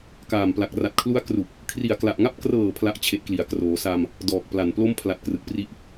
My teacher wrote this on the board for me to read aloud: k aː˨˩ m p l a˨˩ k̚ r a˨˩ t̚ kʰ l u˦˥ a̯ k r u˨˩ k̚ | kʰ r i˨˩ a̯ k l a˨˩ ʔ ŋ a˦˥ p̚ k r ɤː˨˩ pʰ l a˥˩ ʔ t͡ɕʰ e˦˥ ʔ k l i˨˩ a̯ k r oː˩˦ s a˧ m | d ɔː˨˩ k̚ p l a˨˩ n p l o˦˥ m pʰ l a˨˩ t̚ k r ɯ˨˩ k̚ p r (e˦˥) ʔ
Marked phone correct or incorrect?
incorrect: i˦˥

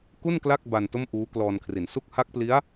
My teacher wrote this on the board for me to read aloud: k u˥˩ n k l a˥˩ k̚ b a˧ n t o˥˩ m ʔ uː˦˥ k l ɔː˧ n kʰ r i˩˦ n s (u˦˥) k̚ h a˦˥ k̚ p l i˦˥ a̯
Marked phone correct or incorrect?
correct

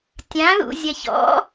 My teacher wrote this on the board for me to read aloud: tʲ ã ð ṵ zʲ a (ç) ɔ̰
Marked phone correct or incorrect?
correct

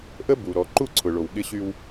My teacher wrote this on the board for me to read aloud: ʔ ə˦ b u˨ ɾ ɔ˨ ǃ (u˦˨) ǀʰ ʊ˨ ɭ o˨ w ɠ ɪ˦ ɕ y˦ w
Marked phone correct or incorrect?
correct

